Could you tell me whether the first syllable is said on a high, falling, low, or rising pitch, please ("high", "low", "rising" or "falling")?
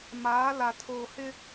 rising